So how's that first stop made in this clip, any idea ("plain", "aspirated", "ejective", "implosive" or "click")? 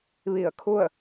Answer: aspirated